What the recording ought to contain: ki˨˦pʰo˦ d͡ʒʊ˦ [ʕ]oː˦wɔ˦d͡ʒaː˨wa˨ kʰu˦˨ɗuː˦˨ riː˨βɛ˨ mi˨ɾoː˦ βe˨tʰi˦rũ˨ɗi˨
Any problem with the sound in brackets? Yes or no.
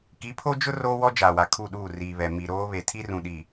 yes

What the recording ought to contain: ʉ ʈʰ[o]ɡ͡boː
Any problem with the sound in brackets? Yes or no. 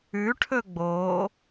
yes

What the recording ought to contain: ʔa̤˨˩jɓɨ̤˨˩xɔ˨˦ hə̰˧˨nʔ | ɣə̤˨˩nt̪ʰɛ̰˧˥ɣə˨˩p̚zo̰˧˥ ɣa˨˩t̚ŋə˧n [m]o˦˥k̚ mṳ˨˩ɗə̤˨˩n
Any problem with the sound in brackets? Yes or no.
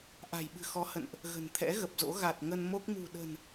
no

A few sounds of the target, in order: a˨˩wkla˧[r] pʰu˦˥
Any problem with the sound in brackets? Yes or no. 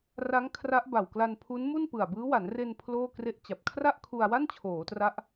yes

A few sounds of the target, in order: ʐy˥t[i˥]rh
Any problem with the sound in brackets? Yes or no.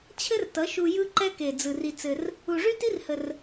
no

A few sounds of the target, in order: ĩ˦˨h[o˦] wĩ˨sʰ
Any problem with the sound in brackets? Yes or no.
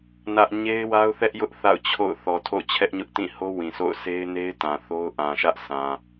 no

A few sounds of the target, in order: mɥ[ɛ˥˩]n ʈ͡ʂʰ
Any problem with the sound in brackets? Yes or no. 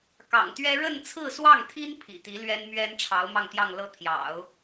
yes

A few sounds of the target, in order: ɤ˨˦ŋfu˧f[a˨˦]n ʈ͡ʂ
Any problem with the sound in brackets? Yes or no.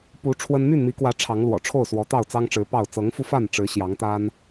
yes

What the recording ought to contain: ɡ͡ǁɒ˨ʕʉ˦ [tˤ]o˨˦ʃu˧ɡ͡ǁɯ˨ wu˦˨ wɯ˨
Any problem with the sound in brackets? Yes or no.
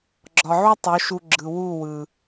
no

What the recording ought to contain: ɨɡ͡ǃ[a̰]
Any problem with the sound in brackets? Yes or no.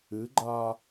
yes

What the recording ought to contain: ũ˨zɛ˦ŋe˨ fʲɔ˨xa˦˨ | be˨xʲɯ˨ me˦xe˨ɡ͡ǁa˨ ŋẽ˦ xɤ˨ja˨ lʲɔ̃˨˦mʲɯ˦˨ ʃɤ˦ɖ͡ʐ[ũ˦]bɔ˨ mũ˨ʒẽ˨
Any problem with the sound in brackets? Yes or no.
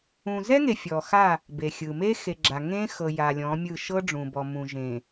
yes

